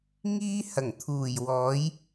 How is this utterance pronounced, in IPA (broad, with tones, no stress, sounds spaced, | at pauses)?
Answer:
ŋ iː˥ h ɐ˨˩ ŋ t̪ʰ uː˨˩ j w ɔː˨˥ j